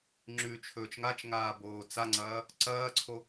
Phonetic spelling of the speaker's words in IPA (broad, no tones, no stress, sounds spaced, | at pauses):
ŋ͡ǁ ʉ t͡ʃʰ ɵː t͡ʃ ŋ a t͡ʃ ŋ aː b oː t͡s a ŋ͡ǀ ɐː | ǀ ɐː ǀʰ o